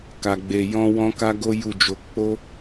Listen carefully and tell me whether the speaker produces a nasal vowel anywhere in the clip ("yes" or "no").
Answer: yes